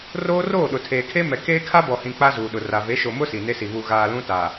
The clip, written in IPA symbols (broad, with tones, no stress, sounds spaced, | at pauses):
r oː˦ r oː˦˨ ɗ ʊ˨ tʰ eː˨ kʰ e˦ m ɛ˨ k eː˦ kʰ a˦ b ɔ˨ h ĩ˨ k͡p a˦ z uː˨ ɗ ʊ˨ r a˨ v e˨˦ ʃ o˨ m ʊ˦ s i˨ n e˦ s i˨ β u˨ ɣ aː˨ l ũ˦ t a˨